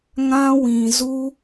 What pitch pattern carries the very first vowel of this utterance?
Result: high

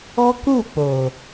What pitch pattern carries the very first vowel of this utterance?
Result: high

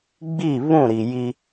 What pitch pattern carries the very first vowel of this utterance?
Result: falling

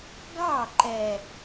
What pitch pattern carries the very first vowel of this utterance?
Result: falling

